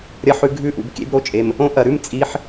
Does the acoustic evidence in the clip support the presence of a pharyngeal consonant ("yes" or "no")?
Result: yes